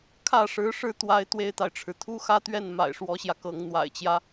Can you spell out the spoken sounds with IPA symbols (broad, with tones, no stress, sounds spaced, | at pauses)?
kʰ ä˥˩ ʂ ɻ̩˧˥ ʂ ɻ̩˥˩ t̪ w a˥ ɪ̯ t̪ w e˥ ɪ̯ t̪ a˨ ɪ̯ ʈ͡ʂʰ ɻ̩˩ t̪ʰ u˥ x ä˥ t̪ ɥ ɛ˥˩ n m a̰˨˩ ɪ̯ ʂ w ɔ˧˥ ɕ j ä˧ k ɤ˧˥ ŋ n̪ w a̰˨˩ ɪ̯ t͡ɕ j ä˦